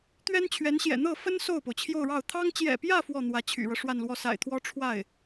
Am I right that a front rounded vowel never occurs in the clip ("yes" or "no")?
no